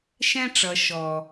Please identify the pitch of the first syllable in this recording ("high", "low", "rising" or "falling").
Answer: high